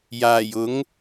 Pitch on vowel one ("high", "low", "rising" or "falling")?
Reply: low